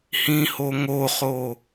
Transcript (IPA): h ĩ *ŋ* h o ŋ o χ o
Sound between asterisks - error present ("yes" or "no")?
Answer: yes